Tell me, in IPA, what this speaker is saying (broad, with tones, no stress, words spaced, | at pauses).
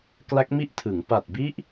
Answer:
kla˦˥k̚mi˥˩ʔ tʰɯ˩˦ŋ pa˨˩t̚bi˦˥ʔ